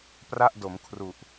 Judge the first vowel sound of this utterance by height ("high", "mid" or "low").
low